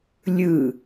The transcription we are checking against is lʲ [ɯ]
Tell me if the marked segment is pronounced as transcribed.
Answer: yes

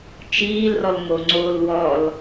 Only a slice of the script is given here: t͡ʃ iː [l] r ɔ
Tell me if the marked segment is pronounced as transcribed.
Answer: yes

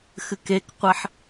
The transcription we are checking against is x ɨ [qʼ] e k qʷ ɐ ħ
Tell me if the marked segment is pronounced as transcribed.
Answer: no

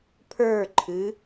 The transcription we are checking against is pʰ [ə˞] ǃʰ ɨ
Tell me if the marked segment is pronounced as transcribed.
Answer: yes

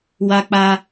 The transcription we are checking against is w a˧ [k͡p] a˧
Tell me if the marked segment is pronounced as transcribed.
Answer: yes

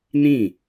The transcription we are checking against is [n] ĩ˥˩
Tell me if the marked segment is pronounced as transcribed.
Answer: yes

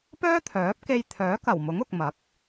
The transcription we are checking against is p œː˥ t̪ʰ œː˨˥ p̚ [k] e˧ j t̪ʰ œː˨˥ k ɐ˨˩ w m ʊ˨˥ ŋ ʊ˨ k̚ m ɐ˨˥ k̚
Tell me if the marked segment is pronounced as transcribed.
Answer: yes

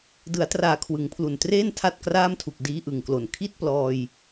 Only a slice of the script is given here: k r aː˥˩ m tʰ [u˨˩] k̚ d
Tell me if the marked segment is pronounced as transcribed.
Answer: yes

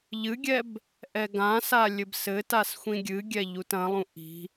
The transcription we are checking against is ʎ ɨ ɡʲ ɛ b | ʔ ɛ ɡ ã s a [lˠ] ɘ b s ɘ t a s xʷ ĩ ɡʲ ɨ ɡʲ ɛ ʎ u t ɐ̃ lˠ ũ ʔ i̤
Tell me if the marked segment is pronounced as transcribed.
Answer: no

